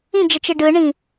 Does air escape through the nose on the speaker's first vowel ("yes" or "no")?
yes